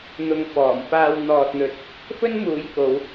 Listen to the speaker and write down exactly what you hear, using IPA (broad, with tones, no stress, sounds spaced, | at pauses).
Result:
n̪ ʊ˨ ŋ f ɔː˨˩ m f aː˧ w n̪ ɔː˨ t̚ n̪ ɵ˨ t̚ | f ɵ˥ n m uː˨˧ j k o˨˧ w